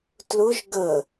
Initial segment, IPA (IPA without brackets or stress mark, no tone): t